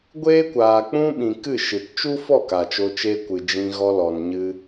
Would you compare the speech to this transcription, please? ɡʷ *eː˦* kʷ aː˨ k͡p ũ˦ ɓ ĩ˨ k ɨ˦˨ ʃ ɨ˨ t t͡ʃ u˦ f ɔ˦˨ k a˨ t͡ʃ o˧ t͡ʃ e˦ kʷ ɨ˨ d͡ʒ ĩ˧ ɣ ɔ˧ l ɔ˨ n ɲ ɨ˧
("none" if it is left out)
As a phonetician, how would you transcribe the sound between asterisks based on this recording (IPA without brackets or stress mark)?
eː˦